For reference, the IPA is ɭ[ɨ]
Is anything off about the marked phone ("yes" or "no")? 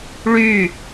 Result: yes